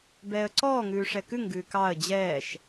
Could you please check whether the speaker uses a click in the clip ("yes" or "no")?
yes